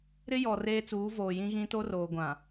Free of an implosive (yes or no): yes